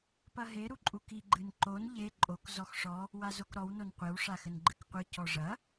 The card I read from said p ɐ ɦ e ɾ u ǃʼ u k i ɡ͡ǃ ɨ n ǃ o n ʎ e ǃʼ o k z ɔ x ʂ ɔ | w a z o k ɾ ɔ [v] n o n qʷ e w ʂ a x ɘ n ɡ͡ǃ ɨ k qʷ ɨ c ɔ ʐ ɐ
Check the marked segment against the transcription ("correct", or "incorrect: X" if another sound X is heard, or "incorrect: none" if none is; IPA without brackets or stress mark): incorrect: w